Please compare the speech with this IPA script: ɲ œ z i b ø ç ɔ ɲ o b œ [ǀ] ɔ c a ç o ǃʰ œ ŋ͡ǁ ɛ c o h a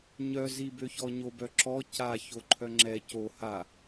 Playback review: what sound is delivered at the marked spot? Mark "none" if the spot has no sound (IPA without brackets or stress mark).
ǁ